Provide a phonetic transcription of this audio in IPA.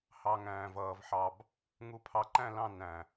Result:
h ɑ˨ ŋ æ̃ː˨ v ʌː˨ v ħ ɑ˨ b | ŋ u˨ pʰ ɑ˨ ǃ æ̃˦˨ l ɑ̃˦˨ n æ̃˨

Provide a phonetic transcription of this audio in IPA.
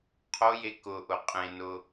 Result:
qʰ o j e k ʊ ʔ ʊ qʼ ẽ n ʊ

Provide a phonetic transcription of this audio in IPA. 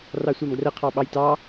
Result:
r ɑ sʷ ɑ m ɡ r ə qʰ ɑ ɓ ɑ j t ɑ

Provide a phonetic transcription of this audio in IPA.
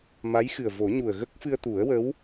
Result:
m a˧˥ j x ɨ˨˩ ə̯ v o˨˩˦ ɲ u˨˩ ə̯ ɣ ə˦˥ k̚ f ɨ˧ ə̯ t̪ u˨˩˦ ə̯ w ə˧˥ w

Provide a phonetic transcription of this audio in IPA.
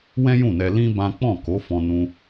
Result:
w ɛ̃˦ j ũ˦˨ n ɛ˧ l ĩ˦ b ã˦ k͡p ɔ̃˦˨ k o˨˦ f ɔ̃˧ n ũ˧

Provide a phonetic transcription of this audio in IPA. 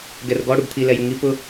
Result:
ɡ ɛ r ɡ ɔ ɽ u ɡ t̪ʰ i l ɛ j u ŋ i p ʊ

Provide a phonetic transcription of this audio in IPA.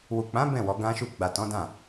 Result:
w u˨ k͡p ã˨˦ b ɛ̃˦˨ w ɔ˨˦ ɡ ã˦ ʃ u˦˨ ɡ͡b a˨ t ɔ̃˨˦ d ã˦˨

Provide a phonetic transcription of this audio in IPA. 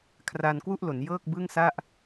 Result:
kʰ r aː˧ n k w u˥˩ ʔ l o˩˦ n j ɤː˥˩ k̚ b ɯ˥˩ ŋ s a˥˩ ʔ

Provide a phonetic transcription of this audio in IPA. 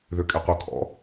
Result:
ð ø kʼ ɛ qʷ œ kʰ ɔ̰

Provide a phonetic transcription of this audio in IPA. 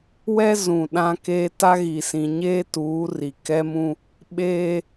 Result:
w ɛ˦ z ũ˨ ɗ ã˦ k eː˦ t a˦ ɣ i˨ s ĩ˨ ɲ eː˦ t uː˨˦ r i˨ k ɛ˦ m ũ˦ | ɓ eː˦

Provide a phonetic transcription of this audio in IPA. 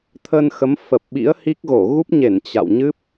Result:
t̪ʰ ə˧ n x ə˨˦ m f ə˨˩ p̚ ɓ ḭ˧˥ ə̯ h i˦˥ k̚ ɣ o˧˩ ɣ u˦˥ p̚ ɲ e˧˩ n t͡ɕ a̰˧˨ w ɲ ɨ˦˥ p̚

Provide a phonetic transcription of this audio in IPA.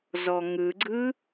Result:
z ɔ ŋ ɯ ɡ͡ǀ ɯ

